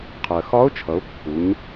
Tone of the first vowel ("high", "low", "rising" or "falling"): low